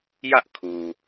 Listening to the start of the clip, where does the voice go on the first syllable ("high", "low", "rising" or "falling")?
high